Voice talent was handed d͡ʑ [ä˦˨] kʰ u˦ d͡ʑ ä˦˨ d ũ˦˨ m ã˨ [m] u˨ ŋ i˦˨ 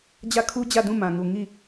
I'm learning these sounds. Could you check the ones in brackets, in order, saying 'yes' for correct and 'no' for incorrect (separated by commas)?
yes, no